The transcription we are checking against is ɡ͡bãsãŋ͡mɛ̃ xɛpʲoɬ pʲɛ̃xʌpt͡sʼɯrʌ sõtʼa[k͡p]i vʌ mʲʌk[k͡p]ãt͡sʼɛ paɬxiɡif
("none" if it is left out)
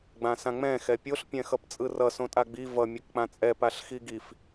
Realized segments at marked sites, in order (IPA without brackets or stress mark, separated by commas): ɡ͡b, k͡p